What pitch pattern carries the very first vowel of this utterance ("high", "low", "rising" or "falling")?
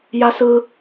high